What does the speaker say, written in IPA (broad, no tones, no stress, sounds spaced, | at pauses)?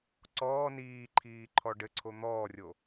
ǀ ɔː n iː ǃʰ iː ǃʰ ɔ ɖ ɘ ǀʰ o n̪ ɔː rʲ o